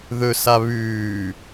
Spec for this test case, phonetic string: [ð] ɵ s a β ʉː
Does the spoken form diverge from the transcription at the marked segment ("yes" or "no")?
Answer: no